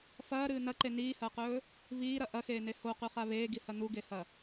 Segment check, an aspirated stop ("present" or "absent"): absent